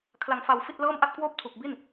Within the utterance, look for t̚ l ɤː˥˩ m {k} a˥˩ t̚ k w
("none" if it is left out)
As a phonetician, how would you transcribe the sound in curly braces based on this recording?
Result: ʔ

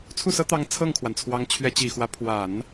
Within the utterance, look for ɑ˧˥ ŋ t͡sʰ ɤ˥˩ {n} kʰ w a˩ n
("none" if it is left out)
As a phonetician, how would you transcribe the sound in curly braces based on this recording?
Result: ŋ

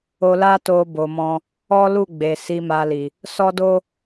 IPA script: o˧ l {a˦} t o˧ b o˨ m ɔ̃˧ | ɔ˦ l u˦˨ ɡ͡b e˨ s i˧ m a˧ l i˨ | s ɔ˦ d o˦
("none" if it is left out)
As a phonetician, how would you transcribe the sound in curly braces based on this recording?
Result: a˦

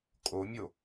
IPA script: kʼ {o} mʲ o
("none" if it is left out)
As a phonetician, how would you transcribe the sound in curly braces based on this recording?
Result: o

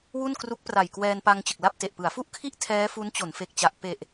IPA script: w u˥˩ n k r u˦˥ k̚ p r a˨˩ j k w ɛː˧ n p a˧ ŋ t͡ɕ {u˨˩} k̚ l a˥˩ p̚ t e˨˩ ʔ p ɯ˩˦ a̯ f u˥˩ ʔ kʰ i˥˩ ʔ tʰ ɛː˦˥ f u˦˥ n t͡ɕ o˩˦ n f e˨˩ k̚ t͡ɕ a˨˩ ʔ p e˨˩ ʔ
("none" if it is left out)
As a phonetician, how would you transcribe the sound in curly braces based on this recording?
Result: ɯ˨˩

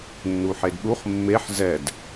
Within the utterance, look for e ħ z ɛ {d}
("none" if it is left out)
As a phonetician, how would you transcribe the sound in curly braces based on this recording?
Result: d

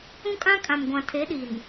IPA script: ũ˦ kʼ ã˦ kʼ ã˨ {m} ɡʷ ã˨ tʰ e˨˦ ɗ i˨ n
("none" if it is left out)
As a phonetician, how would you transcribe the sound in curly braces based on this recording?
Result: m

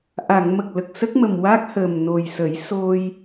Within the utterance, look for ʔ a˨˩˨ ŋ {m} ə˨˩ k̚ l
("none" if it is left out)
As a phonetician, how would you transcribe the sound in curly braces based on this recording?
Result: m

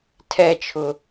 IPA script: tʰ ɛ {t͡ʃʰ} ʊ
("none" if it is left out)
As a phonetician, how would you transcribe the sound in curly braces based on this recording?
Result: t͡ʃʰ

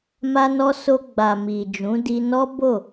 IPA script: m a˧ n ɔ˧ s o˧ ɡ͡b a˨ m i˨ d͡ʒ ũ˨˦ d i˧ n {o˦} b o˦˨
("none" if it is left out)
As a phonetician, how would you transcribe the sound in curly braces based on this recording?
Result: ɔ˦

